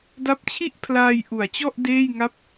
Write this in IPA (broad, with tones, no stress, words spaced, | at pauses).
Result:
da˦˥p̚t͡ɕʰi˥˩ʔpʰlaː˧j ʔu˩˦a̯t͡ɕɔ˥˩ʔ deː˥˩jŋa˥˩p̚